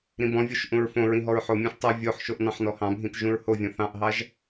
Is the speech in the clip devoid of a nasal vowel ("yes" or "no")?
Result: no